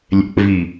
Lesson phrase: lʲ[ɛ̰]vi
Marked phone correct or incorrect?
correct